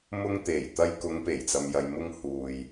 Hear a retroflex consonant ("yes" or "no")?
no